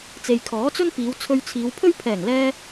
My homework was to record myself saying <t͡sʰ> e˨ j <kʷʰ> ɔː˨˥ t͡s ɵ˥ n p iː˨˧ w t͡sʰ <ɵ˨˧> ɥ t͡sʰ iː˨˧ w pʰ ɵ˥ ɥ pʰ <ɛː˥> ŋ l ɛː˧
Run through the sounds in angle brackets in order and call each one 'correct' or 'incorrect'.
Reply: incorrect: t͡s, incorrect: kʰ, incorrect: ɵ˧, incorrect: ɛː˨˩

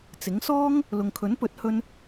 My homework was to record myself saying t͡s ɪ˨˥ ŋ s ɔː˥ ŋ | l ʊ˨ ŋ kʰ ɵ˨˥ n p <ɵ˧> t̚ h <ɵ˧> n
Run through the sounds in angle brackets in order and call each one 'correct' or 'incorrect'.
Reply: incorrect: ɵ˨˥, incorrect: ɵ˥

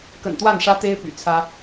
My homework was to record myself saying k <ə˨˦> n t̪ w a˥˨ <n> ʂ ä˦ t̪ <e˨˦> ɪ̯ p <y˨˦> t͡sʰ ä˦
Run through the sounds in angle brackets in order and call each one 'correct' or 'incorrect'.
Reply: incorrect: ə̰˨˩, correct, incorrect: e˦, incorrect: y̰˨˩

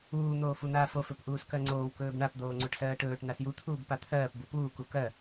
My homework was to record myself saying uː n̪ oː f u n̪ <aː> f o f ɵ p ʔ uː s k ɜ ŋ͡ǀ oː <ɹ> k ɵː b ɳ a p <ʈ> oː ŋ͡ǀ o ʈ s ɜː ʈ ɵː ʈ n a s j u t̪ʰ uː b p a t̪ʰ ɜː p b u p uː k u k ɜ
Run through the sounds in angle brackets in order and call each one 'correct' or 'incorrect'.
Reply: correct, incorrect: w, incorrect: d̪

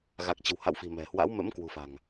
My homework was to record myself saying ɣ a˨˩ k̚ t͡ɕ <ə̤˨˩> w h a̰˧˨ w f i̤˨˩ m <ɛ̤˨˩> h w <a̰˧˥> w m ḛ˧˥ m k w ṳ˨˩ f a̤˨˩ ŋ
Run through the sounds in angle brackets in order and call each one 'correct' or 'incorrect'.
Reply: correct, correct, correct

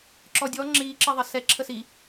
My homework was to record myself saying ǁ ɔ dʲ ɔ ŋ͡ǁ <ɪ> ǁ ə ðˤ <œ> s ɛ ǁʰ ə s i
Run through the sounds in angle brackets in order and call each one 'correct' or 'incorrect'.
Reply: incorrect: i, incorrect: ə

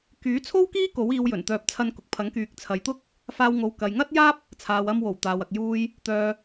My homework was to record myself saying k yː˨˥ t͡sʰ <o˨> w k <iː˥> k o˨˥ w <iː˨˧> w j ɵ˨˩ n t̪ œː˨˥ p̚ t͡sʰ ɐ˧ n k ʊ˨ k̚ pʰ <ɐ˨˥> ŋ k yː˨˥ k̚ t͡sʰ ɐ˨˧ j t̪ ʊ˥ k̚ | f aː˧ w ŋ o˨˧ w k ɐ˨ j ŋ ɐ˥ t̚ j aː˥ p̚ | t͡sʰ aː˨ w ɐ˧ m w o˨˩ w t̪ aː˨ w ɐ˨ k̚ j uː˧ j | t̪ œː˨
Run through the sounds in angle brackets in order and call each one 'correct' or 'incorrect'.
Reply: incorrect: o˥, correct, correct, correct

